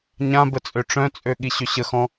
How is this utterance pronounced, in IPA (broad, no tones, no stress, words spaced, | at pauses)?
ɲãbə t͡sʼøʈ͡ʂœ̃t͡sʼø ɠiɕøɕəxɔ̃